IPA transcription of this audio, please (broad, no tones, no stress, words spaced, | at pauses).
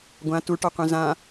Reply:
ɡʷã tuʈɔqʷɛ̃ zã